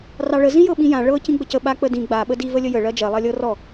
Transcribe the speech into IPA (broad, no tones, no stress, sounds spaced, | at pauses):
r ɑ ɭ ə z ĩ j ɤ ɓ ĩ j ã ɭ ɤ c ĩ ɡ͡b ə c ə ɓ a k͡p ə d ĩ ɡ͡b a ɓ ə d i v ə lʲ ə j ə ɭ ɜ d͡ʒ ɜ lˠ ɜ lʲ ɤ r ɔ